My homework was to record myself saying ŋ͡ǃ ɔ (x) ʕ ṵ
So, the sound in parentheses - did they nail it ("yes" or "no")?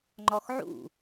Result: yes